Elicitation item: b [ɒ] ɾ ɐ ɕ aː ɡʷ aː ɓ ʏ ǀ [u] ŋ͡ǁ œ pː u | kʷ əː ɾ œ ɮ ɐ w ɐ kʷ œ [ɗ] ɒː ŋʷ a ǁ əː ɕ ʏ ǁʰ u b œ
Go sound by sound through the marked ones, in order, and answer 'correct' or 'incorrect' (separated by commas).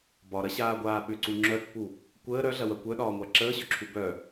correct, correct, correct